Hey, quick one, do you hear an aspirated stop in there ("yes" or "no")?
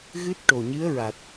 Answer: no